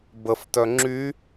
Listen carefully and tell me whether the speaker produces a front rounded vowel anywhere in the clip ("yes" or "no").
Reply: yes